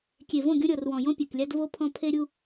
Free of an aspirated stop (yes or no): no